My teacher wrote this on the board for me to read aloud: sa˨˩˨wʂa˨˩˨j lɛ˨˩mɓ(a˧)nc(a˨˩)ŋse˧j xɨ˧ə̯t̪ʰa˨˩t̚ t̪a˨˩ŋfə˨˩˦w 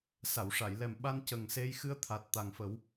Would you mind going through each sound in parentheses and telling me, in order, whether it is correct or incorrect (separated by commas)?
correct, incorrect